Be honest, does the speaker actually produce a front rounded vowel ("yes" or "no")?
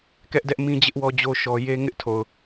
no